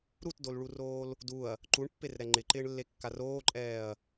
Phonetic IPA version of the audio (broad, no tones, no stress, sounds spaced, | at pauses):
ɾ u t d o l ɭ u r oː l | d u ɐ̯ | ǃ u ɳ pː e r ɾ ɛ ŋ͡ǃ ɪ ǃ ɪː ɳ lː e kː a r oː ǃʼ ɛː ɐ̯